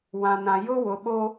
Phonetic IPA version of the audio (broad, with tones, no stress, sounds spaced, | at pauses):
w ã˨ n ã˨ j ʊ˦ w ʊ˨ ɓ o˦